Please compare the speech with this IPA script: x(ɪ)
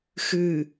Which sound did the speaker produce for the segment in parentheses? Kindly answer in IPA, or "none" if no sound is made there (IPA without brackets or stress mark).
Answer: ɨ